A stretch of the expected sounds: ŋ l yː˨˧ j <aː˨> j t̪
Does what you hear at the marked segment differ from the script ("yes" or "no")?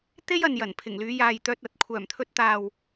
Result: no